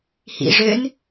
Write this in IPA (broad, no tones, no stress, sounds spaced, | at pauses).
h ḭ ʐ ø n